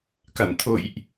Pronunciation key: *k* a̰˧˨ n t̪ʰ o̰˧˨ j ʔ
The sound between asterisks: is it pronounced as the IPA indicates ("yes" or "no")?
yes